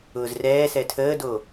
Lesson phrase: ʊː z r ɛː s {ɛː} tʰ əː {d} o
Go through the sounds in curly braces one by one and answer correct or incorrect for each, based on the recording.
incorrect: ɛ, correct

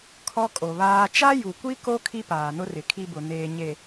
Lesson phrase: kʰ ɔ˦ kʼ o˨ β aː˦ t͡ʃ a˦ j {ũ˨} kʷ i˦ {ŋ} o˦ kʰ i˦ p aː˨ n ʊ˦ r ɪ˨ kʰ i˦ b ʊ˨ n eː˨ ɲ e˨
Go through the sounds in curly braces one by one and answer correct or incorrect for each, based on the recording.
incorrect: u˨, incorrect: k

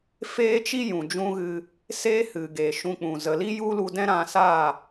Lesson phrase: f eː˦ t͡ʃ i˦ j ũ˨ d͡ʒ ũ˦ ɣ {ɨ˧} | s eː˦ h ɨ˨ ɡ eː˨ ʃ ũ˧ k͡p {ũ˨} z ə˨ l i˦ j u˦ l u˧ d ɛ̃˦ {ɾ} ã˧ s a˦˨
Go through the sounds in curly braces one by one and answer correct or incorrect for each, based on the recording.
correct, correct, correct

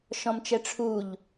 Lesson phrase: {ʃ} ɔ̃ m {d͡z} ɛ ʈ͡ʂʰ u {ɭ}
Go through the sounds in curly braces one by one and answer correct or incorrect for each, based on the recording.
correct, incorrect: t͡ʃ, incorrect: ʎ

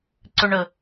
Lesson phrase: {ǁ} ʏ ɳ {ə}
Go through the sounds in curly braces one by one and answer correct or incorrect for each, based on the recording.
incorrect: ǀ, correct

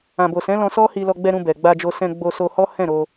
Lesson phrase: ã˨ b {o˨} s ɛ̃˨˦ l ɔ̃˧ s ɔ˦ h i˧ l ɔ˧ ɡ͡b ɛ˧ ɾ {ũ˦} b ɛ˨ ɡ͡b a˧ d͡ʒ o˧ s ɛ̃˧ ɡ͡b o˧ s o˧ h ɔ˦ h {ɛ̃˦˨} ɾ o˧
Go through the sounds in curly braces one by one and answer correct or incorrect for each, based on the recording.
correct, incorrect: ũ˧, correct

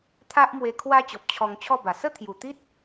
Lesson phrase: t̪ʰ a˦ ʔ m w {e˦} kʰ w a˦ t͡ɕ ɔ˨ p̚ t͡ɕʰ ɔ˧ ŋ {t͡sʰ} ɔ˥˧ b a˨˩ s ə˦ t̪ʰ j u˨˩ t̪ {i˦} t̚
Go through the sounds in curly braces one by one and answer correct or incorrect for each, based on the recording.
incorrect: e˧, incorrect: t͡ɕʰ, correct

